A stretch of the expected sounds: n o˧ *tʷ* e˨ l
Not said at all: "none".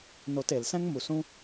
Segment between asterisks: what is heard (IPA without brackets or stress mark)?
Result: t